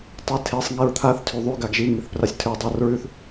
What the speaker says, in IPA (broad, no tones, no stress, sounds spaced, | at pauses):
tˤ e tʰ e sˤ ŋ i ɹ t̪ʰ a θ tʰ y ðˤ y ɡ a ɡ ʒ i ŋ i θ p r a sʲ tʰ ʉ dˤ a r ɹ ʉ θ